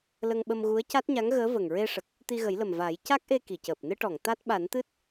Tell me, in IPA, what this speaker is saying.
l ə˧ ŋ ɓ ə˧ m ɣ u˧˥ ə̯ c a˦˥ t̚ ɲ a˧˥ ŋ ɣ əː˧˥ v ə˨˩ ŋ ɹ e˧ ʂ ə˨˩ k̚ | t̪ i˧ ɣ ə˨˩˦ j l ə˨˩ m v aː˨˩˦ j c a˦˥ k̚ ʔ e˧ k i˨˩˨ c əː˨˩ p̚ n ɨ˧ ʈ ɔ˨˩˨ ŋ t̪ a˦˥ t̚ ɓ a˨˩˦ n t̪ ɨ˦˥ t̚

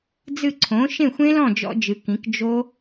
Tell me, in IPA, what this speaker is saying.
d͡z ɨ˥˩ ǀʰ õ˩˥ ʃ ẽ˥˩ xʷ ẽ˦˥ l ɔ̃˥˩ d͡ʒ ɔ̰˦˥ d͡ʒ ɨ˩˥ k ĩ˩˥ k d͡ʒ o˦˥

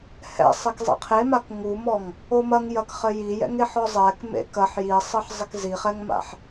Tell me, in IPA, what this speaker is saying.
h ɛ̰ sˤ i k zˤ ḛ qʰ e m a k ŋ u m ɔ ŋ | o m ɐ ŋ j ɐ k χ ɘ j i j ɛ̰ ŋ e ħ ɔ zˤ ɛ k m ḛ k ɐ ħ j i sˤ ɘ ħ zˤ ɘ k z i χ ɛ ŋ m a̰ ħ

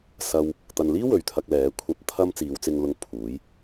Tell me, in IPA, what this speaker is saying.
s ɐ˧ w | t̪ ɐ˧ n l iː˥ w ɵ˨ ɥ t̪ʰ ɐ˧ k̚ l ɛː˨˥ kʷʰ ɐ˧ p̚ t̪ʰ ɐ˥ m t͡s iː˨˧ w t͡s ɪ˧ ŋ l ʊ˧ ŋ pʰ uː˨˥ j

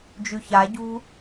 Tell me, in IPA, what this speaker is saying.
d͡ʒ ʉ ç a ɟ ṳ

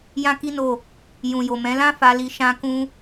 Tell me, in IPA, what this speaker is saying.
j ã˦ k i˦ n o˦˨ | j ũ˨ j o˨ m ɛ̃˨˦ l ã˦ f a˧ l i˧ ʃ ã˦ k ũ˦

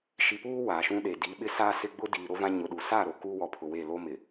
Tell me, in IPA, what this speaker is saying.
ʃ i˨ p uː˦ w a˨ ʃ ũ˦ ɗ e˨ d i˨˦ ɓ ɪ˦ s aː˦ s ɪ˦ ɡ͡b ʊ˦ d iː˨ ɾ o˦ v ã˦ ɲ ʊ˨ ɗ u˨ s aː˦˨ ɾ o˨ k u˦ w ɔ˨ pʰ ʊ˨ w e˦˨ l o˦ m ɪ˨

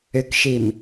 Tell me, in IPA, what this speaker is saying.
ʏ k ʃ i m

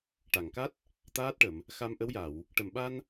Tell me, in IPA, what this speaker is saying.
ʈ a˨˩˨ ŋ k a˦˥ t̚ | t̪ aː˦˥ t̚ ʈ ə˨˩˨ m | x a˧ m ʔ ə˧˥ w j a˨˩˨ w | ʈ ə˨˩ m ɓ a˧ n

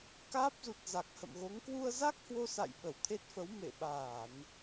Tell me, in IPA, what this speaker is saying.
k aː˦˥ p̚ z u˨˩ t̚ z a˨˩ k̚ h ə̰˧˨ m ɣ o˨˦ ŋ k w u˧ ə̯ z a˦˥ k̚ h w o˧ s a̰˧˨ j ɓ ə˧˩ w t̪ʰ e˦˥ t̚ f ə˨˦ w m ḛ˧˨ ɓ aː˧˩˨ n

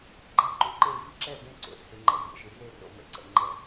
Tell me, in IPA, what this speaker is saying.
ɡ͡ǃ a˦˨ ǃ u˨ ǃ e˦˨ v i˦˨ ǁ ɛ˦˨ b ẽ˦˨ ǀ o̰˨ t͡sʰ e˨ ŋ͡ǃ ɛ̰˨ vʲ ɛ̰˨ ʃ i˨ r e˦˨ r o̰˨ m ɛ̰˨ ǀ ɛ̰˨ ŋ͡ǃ ɛ˦˨

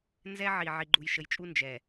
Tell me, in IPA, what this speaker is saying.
n z ɛ˦ ʕ i˨ ʕ i˨ ɡ͡ǃ u˨ j ʃ ə˨ j t͡ʃʼ u˦ n d͡ʒ ɛ˨

